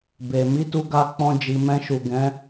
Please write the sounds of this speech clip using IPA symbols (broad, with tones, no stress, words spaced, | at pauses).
be˨ mi˨˦tu˧ɡa˧ k͡pɔ̃˧ d͡ʒi˨mɛ̃˧ʃu˨ ɡɛ̃˨˦